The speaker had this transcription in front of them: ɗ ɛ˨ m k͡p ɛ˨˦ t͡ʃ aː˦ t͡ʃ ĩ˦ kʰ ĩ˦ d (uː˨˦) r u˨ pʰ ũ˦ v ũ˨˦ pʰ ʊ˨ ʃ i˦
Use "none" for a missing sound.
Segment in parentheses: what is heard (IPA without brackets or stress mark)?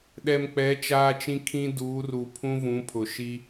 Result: uː˨˦